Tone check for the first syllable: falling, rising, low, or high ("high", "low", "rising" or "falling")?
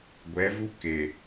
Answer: rising